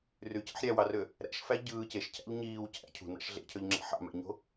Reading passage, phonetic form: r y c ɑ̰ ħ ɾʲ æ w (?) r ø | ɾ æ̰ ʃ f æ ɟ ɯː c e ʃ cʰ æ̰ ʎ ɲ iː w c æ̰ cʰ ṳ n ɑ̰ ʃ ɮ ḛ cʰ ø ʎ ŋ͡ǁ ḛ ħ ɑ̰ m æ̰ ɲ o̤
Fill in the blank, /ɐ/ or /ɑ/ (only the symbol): ɑ